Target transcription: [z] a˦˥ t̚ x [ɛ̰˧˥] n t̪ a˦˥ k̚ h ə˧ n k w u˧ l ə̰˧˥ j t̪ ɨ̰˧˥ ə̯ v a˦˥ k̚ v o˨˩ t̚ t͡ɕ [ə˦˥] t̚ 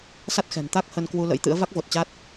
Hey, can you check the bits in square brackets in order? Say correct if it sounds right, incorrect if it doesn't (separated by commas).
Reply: incorrect, incorrect, incorrect